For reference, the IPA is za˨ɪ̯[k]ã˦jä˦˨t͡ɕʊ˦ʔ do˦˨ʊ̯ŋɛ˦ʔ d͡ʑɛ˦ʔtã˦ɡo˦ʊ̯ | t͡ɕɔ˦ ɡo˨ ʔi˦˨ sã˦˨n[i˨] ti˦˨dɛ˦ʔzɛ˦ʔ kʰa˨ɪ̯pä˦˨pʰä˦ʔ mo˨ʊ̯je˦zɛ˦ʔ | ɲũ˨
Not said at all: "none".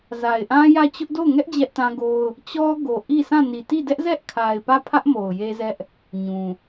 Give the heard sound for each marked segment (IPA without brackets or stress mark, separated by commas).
ʔ, i˨